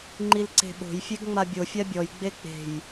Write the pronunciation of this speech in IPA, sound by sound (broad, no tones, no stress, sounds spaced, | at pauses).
ŋ͡ǃ i l ǀ e̤ ɓ o̤ j fʲ e ɡ ŋ͡m a bʲ o fʲ a bʲ ɔ j ɡ͡b e k͡p e̤ j